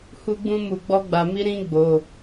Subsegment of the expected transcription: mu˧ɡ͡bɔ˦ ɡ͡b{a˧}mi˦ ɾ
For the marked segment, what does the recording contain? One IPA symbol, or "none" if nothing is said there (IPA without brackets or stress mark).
a˧